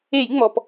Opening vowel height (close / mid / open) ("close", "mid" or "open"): mid